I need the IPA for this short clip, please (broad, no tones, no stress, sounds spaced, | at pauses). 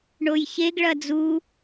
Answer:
ɳ o j ç e ɡ ɭ ɐ d͡z u